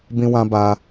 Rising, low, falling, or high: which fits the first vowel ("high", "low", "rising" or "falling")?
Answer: high